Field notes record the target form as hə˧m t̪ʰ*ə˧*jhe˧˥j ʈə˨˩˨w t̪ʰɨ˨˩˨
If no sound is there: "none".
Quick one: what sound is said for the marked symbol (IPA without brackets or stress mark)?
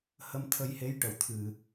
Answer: ə˧